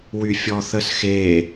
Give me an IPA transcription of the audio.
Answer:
w y fʲ ɔ θ ə s x e

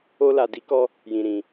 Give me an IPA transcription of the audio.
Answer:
o˧ l a˨ d i˨˦ k ɔ˧ | j ĩ˨ ɾ ĩ˨

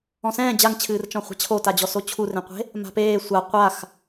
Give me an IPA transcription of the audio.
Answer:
ɔ̃ s ɛ̃ː d͡ʑ a ŋ t͡ɕʰ ɨː r t͡ʃ ɔ̃ χʷ a̤ t͡ɕʰ o t a d͡ʑ ɔ s o t͡ɕʰ u r ẽ qʷ e̤ | m a̤ p eː sʷ a qʷ a x

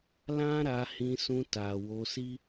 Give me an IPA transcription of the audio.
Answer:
l ã˦ ɾ a˧ h ĩ˧ s ũ˧ t a˨ w o˧ s i˦

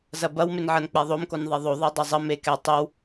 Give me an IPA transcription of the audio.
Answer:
z ɐ b ɐ w m e n ʕ ɐ n k͡p ɛ ðˤ o m k o n ðˤ e ðˤ o ðˤ e dˤ ɐ zˤ ə m e k ɛ tˤ e w

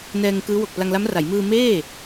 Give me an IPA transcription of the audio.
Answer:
n ɛː˧ ŋ k ɯː˦˥ w o˨˩ k̚ p l a˧ ŋ l a˦˥ m r a˩˦ j m ɯː˧ m eː˥˩

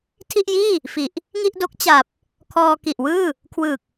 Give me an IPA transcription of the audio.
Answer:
tʰ i˥˩ ʔ j iː˥˩ | f i˨˩ ʔ | ŋ i˥˩ ʔ d o˦˥ k̚ t͡ɕ a˨˩ p̚ | kʰ ɔː˧ k i˨˩ ʔ w ɯː˥˩ | kʰ w ɯː˨˩ k̚

